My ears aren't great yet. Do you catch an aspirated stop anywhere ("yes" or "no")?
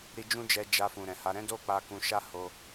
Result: no